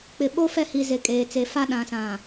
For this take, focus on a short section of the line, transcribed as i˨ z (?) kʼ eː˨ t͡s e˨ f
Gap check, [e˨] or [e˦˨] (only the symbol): e˨